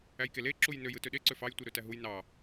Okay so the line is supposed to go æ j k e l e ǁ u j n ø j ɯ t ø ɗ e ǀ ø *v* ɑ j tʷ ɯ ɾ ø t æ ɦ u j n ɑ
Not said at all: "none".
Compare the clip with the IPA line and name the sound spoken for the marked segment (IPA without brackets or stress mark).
f